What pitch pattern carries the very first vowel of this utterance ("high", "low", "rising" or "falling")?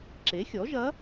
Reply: rising